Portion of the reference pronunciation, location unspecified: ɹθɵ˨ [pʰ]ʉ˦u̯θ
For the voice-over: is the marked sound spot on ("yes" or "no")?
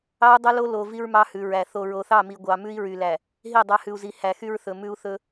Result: no